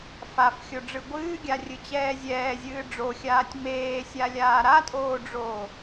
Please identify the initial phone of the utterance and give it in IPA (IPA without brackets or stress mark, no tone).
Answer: f